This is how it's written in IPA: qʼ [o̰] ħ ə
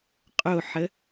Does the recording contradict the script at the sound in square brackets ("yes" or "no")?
yes